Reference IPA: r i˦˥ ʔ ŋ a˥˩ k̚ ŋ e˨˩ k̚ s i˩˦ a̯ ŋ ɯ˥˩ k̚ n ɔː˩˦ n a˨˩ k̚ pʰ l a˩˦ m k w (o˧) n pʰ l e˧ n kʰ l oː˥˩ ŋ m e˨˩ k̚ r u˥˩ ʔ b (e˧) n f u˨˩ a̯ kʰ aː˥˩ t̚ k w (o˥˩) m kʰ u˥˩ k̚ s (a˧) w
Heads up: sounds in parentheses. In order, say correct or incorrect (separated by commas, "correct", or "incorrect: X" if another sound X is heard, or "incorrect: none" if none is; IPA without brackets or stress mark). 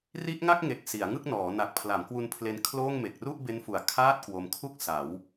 incorrect: u˧, incorrect: e˦˥, incorrect: o˧, incorrect: a˩˦